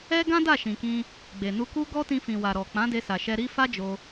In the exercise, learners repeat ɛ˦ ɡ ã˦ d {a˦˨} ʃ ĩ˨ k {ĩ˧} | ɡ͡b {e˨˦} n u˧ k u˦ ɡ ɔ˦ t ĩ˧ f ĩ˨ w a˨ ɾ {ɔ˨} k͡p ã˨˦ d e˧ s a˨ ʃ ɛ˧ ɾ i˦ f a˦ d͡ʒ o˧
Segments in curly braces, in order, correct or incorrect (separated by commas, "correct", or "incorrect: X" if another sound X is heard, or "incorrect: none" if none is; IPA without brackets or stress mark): correct, correct, incorrect: e˨, correct